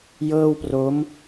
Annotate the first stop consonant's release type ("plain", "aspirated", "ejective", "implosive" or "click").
plain